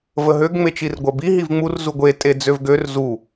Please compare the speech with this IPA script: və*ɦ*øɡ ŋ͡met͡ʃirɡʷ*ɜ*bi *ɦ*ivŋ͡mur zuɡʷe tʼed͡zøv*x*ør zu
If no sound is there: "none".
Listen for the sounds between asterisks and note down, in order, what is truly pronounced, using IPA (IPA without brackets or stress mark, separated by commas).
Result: ɦ, ɜ, ɦ, ɡ